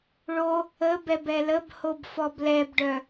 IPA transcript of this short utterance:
ɭo | əbɛb ɛləbhob fɔblɛbɖœ

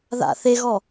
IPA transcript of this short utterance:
ða̰θeɣɔ

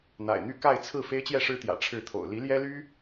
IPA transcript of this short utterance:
n̪a̰˨˩ɪ̯n̪y˥˧ ka˥˧ɪ̯t͡sʰɹ̩˥˩ fe˥ɪ̯t͡ɕjɛ˥˩ʂɻ̩˥t̪jä̰˨˩ ʈ͡ʂʰɻ̩˥˩t̪ʰo̰˨˩ʊ̯ li˧˥ljɛ˥ly˥

